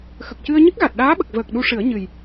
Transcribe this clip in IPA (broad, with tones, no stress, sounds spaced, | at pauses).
x ə˨˩ k̚ c ɨ˧ ə̯ ɲ ɨ˦˥ k̚ ɣ a˨˩ t̚ ɗ aː˧˥ ɓ ə˨˩ k̚ v əː˨˩ k̚ ɗ u˧ ʂ ɨ˨˩˦ ə̯ ɲ ɨ˨˩ j